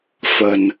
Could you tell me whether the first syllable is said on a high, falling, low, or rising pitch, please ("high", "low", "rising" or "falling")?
low